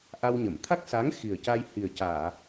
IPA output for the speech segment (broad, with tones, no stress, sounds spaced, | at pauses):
ʔ a˧ w ɲ ə˨˩˨ m t̪ʰ a˦˥ k̚ s a˧˥ ŋ x i˨˩ ə̯ c a˧ j h i˨˩ ə̯ c aː˨˩˨